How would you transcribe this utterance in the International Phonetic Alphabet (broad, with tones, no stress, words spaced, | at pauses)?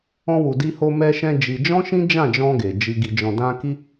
ɔ̃˧wu˨di˧ho˧ mɛ˧ʃɛ̃˧ d͡ʒi˧ d͡ʒɔ̃˦ʃĩ˦d͡ʒã˦˨d͡ʒɔ̃˧ ɡe˨d͡ʒi˧ ɡi˨d͡ʒɔ̃˨dã˧ ki˦